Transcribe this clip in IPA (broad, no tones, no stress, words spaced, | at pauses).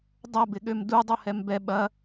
dˤɐbɪɠøm dudˤuhɛm bɛ ɓɐ